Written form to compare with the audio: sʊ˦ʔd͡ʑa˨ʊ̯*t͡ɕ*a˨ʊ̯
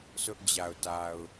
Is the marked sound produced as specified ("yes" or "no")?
no